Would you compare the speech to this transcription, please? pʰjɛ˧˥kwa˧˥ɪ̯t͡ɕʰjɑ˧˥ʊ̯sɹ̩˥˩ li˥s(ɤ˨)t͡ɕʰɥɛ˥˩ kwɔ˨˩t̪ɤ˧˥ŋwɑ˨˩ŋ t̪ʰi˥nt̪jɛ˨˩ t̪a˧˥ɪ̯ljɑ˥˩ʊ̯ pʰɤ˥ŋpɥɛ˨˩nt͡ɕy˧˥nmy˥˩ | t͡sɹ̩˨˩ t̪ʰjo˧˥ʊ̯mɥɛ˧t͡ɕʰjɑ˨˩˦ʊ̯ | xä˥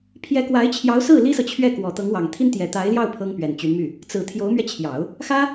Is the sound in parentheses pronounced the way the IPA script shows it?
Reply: yes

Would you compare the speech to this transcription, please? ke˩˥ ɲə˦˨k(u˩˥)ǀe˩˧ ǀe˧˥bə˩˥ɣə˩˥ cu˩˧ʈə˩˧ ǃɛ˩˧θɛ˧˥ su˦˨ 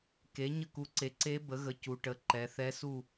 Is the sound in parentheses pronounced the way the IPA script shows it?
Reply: yes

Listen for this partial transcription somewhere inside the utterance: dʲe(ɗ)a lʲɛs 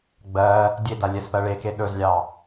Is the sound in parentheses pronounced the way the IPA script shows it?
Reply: no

